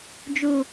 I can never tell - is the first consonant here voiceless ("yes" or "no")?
no